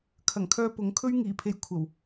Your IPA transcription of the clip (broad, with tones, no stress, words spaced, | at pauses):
kʰɐ˨˩ŋkʰœː˧pʊ˨˥ŋkʰɵ˥ɥ ŋiː˨˩pʰe˨˧j kʷʰɐ˨˩w